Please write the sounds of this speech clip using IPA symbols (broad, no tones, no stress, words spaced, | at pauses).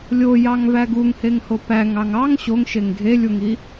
lʲojɑŋvæ ɡuŋheŋho pæŋɑŋ ɑŋ ɕoŋʃeŋ ɡʱelʲuŋi